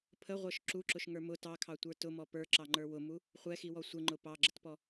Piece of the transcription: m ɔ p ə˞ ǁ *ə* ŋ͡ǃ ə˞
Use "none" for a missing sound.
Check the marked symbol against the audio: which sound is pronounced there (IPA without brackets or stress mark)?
ɑ